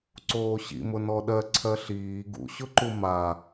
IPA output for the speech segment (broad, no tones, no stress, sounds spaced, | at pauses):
ǀ oː ɕ ḭ m ʊ n ɔ ɗ ɜ ǀʰ ɜ ɬ iː ɡ ṵ ɕ ʊ ǃ u m a